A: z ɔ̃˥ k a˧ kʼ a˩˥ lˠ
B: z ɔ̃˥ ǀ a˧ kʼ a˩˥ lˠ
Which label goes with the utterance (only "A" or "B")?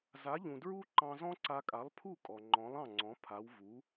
B